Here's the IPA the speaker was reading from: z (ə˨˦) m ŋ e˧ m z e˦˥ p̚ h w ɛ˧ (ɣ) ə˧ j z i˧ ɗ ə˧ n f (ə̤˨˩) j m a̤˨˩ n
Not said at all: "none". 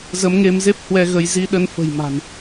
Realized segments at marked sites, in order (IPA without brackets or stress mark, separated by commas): ə˨˦, ɣ, ə̤˨˩